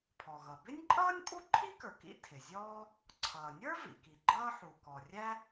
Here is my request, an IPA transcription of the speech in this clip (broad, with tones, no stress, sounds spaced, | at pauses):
pʰ ɔ˩ ɣ ʌ˩ b ɪ˥ nʲ ǃʼ ʌː˥ nʲ pʼ u˥ ǃʰ i˥ k ə˞˩ k ḭ˥ tʰ ɪ˩ zʲ ɔː˥ | ǀʰ ʌː˩ nʲ ə˞˥ v ḭ˩ k i˩ ɡ͡ǃ ʌː˥ ħ u˩ k ɔ˩ rʲ æ˥